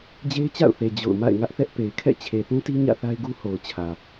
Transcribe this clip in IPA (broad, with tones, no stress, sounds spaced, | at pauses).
d͡ʑ e˦ ɪ̯ t͡ɕ a̰˦˨ ʊ̯ θ e˨ d͡ʑ o̰˦˨ ʊ̯ m a̰˦˨ ɪ̯ ŋ ä˦ ʔ θ ɛ˦ ʔ p e˨ ɪ̯ kʰ ɛ̰˦˨ t͡ɕʰ e˨ θ ũ˦ t i˦ ɲ ä̰˦˨ θ a˦ ɪ̯ ɡ u˦ h o˨ ʊ̯ t͡ɕʰ ä˨